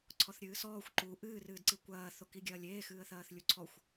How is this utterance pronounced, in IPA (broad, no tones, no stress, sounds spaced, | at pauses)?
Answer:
ǀʰ ɔ θ ɾʲ ɨː s ɔː xʷ ǃ u ʔ ɨː r ɨː d ǀ i kʷ ɐː θ o k i ɡʲ ɐː lʲ eː x ɨː ə̯ θ ɐː θ lʲ u ǀʰ ɔ xʷ